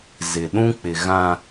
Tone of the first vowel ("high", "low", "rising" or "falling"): low